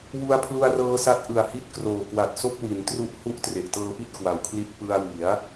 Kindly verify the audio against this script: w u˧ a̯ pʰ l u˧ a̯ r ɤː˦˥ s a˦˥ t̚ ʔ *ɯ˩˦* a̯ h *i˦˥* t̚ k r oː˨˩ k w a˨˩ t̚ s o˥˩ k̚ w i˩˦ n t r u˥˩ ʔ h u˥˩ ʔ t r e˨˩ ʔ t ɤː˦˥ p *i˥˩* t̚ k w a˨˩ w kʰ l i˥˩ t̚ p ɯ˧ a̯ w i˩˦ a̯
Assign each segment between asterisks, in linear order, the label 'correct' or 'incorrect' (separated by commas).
incorrect, incorrect, correct